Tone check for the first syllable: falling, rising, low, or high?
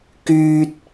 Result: high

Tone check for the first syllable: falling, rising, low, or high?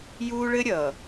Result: high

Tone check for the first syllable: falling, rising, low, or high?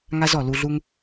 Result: high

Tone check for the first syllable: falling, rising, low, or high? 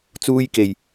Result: high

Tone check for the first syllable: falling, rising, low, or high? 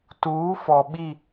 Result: rising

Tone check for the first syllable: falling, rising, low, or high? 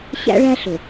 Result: high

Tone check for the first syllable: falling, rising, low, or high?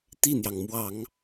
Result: falling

